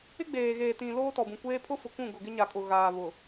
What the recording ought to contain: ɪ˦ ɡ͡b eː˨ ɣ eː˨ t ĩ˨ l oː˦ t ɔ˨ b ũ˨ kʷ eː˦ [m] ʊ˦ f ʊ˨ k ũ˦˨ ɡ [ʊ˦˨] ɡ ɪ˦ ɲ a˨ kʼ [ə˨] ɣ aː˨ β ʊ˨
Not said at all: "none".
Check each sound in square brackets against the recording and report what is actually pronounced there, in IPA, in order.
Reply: pʰ, ʊ˨, ʊ˨

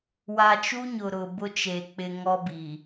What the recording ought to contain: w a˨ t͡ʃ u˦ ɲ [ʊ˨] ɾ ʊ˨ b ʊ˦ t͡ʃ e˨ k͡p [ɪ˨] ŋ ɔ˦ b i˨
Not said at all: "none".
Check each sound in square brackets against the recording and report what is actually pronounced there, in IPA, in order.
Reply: ʊ˨, ɪ˨

